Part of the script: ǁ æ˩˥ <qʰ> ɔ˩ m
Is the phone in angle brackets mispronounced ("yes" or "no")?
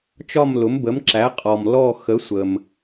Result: yes